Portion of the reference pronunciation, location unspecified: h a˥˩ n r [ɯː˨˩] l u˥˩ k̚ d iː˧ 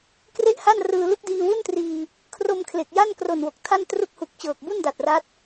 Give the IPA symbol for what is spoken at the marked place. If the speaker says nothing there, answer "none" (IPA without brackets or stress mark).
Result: ɯː˧